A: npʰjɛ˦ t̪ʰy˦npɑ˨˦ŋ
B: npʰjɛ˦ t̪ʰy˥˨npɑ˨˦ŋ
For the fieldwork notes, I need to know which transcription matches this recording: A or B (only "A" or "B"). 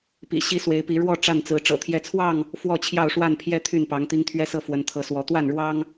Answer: B